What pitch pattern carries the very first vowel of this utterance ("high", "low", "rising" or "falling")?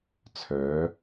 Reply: rising